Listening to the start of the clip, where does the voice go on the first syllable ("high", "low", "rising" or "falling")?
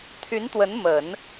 rising